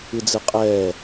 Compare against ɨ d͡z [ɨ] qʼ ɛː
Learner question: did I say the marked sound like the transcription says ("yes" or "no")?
yes